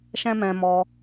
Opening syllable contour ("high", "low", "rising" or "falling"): high